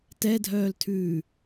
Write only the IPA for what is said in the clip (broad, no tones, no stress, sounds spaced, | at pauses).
t ɛ dʱ œː l tʰ ʉː